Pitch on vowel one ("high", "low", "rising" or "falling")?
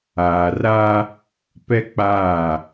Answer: low